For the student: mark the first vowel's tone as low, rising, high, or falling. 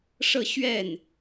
falling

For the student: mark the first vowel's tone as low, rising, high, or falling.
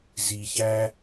low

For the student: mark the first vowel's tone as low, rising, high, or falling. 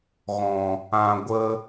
low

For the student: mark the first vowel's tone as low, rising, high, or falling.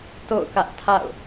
falling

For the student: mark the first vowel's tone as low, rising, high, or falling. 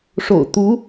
low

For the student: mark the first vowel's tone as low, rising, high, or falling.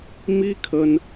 high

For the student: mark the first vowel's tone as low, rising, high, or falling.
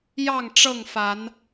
falling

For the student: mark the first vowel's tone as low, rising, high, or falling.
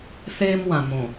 high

